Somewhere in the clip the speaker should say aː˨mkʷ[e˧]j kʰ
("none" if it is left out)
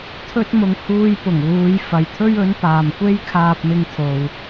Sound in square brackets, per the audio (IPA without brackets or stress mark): e˥